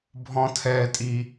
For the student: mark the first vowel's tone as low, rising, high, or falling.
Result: high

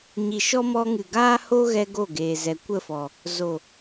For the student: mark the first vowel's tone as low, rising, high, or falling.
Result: low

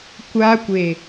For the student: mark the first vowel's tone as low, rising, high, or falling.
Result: high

